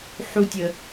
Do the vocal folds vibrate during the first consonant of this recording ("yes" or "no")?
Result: no